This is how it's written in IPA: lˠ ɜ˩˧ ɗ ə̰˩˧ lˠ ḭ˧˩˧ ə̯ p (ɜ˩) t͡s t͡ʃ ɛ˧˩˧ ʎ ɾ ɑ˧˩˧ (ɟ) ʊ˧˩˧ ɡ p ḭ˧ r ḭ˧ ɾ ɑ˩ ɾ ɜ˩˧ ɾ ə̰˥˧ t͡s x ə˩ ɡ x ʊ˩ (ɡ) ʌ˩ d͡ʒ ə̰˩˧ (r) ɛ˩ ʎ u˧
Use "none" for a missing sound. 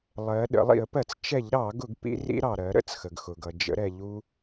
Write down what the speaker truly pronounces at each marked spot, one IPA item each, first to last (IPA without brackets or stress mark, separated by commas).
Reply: ɜ˧˩˧, ɡ, ɡ, ɾ